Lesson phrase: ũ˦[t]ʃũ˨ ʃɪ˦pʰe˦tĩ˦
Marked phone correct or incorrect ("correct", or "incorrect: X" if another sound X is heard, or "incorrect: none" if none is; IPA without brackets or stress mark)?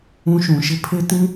incorrect: none